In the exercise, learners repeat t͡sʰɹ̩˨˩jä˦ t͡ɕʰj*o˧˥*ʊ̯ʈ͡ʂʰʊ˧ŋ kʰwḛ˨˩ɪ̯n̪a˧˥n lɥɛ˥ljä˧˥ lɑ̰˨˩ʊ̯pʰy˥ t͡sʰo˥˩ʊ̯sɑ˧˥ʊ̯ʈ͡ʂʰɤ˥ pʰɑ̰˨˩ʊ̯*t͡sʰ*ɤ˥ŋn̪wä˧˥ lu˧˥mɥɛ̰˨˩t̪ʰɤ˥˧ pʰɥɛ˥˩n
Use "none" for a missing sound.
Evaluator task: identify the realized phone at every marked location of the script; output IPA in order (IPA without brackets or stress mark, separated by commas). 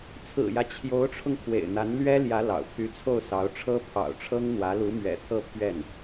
o˧˥, ʈ͡ʂʰ